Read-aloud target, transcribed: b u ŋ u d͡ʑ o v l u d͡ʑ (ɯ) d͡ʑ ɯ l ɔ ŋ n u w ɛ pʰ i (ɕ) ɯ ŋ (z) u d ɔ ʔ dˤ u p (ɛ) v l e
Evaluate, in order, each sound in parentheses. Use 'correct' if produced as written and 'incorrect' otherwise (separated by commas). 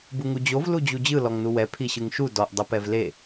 incorrect, correct, incorrect, correct